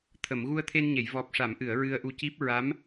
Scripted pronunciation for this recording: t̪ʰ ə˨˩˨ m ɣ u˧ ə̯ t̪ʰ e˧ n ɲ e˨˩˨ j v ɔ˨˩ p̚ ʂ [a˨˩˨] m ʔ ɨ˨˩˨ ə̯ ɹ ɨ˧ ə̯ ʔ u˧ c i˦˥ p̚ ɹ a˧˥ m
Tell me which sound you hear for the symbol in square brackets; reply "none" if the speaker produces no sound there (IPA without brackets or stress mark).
a˨˩˨